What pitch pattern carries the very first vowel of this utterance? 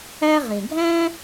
high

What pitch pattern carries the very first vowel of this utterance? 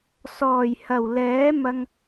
low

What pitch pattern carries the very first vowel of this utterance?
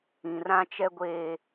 low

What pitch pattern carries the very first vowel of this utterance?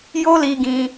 high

